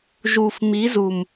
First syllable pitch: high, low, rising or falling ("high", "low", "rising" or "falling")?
low